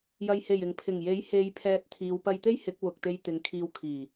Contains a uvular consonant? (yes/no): no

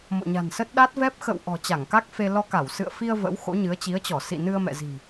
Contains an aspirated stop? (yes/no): no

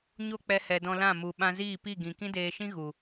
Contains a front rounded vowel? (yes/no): no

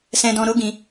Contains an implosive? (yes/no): no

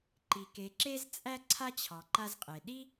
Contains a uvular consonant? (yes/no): yes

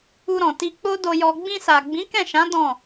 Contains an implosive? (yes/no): no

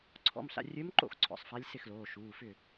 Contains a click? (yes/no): yes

